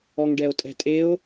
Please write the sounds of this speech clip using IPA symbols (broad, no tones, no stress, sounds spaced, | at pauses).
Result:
ɔ ŋ ɖ ɛ o̯ tʼ ɛ̤ tʼ e o̯